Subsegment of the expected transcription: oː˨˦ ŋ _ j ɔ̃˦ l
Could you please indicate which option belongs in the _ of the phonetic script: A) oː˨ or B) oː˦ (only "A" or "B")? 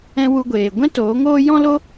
B